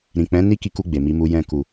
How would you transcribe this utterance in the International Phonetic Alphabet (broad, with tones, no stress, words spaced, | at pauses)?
ɾĩ˨k͡pɛ̃˨˦ ni˦ki˧ku˧ ɡ͡be˨mi˨˦mu˧ jɛ̃˧ku˨